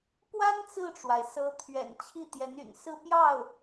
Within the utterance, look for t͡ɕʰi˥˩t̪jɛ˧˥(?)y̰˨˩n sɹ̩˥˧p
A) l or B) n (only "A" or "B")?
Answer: B